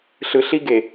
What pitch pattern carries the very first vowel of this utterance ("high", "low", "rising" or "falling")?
low